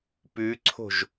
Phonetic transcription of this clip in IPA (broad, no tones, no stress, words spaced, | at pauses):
pʉǀʰo̤ʒ